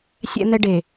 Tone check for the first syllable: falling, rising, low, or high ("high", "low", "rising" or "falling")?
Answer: high